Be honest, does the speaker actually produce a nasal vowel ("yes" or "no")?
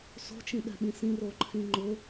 yes